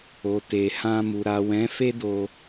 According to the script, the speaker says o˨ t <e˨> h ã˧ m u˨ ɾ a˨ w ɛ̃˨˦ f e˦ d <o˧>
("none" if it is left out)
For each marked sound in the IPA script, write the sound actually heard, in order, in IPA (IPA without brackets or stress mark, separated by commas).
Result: e˨, o˧